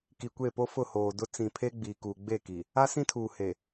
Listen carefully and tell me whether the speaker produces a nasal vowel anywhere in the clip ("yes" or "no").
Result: yes